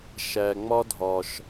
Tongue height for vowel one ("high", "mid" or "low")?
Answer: low